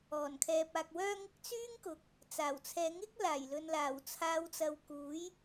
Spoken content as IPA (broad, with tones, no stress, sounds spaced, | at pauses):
ɔː˨˩ n kʰ ɛː˨ p̚ aː˨ k̚ w œː˧ ŋ ɪ˧ k̚ t͡s yː˥ ŋ k ʊ˨ k̚ | t͡s aː˨˩ w t͡sʰ ɛː˨˧ ŋ ɪ˥ k̚ l aː˨˩ j l ɵ˨ n l aː˨˩ w t͡sʰ aː˨˧ w t͡s ɐ˨ w k uː˨˥ j